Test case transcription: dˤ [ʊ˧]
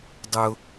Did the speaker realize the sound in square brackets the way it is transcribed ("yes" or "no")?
no